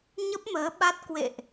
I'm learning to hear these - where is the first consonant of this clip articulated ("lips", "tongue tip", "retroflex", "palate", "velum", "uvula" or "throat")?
palate